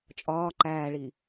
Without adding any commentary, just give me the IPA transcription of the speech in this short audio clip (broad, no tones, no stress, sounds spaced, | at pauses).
t͡ʃʼ ɒː ǃ æː ɭ i